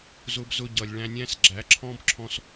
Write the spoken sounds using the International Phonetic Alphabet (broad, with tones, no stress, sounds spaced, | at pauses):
z ʊ˧ b z ʊ˧ ɟ ʌ˧ lʲ ɭ æ̃˧ nʲ æ̃˦ s ɡ͡ǁ æ˨˦ ǁʰ ɔ̃˦ b ǁʰ ɔ̃˦ s